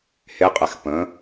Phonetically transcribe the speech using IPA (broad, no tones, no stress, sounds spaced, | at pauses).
h e qʼ ɛ x p ə̃